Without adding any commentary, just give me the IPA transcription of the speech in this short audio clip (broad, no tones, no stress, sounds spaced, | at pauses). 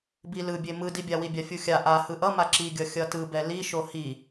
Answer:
b i l ɯ bʲ e m ɯ d i bʲ a w i bʲ a fʲ u xʲ a ʔ a h ɯ ʔ ʌ m a ǁ i ɡʲ ʌ xʲ ʌ t ɯ b ɛ l i ʃ o h i